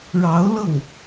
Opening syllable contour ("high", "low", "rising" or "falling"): rising